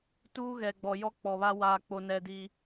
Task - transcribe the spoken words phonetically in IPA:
tuː˦ɣɛ˨ɡ͡bɔ˨ jɔ˦k͡pɔ˨βa˦ waː˦k͡po˦nɛ˦ di˦

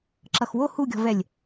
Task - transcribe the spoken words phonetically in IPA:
ǁʌxwo huɡʲɔ̤vɛlʲ

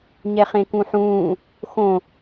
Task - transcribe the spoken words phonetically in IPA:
ɲɛχẽkũħũː | xõ

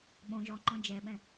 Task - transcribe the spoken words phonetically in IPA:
ɓõ ʒɔŋ͡ǃɔ̃ d͡ʒɛɓɛ̃

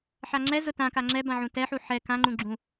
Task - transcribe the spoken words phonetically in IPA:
ħaŋ͡ǁɛzʊ tãka ŋ͡ǁɛ bãʕũtɛħu ħɛ kãŋ͡ǃũ ɡ͡ǁũ

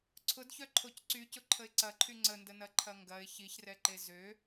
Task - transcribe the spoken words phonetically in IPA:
ǀʰʊdçœ ǃʰocǀycʊ ǃʰəɪ̯ǀɐǃʰy ŋ͡ǀəndənɐ ǃʰɐŋɡɐɪ̯ çiçrɛǃe zø

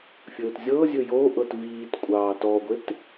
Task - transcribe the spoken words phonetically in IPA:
fʲɵːtzʲɤːzʲɵ joːʔɤt viːtkʷʼɑː tɔːɡʷet

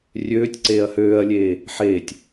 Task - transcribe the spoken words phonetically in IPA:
rʲøːtʲǀeːɐ̯ høːɐ̯lʲeː | ħeːtʲ

